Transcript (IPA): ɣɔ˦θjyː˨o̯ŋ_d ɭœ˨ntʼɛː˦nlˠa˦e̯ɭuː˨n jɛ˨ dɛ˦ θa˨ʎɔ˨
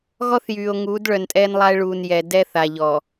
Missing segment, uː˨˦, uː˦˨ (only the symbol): uː˨˦